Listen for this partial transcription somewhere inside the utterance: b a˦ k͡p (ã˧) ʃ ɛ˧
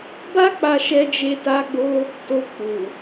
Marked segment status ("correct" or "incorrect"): incorrect